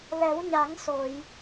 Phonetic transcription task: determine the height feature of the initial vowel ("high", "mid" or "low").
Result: mid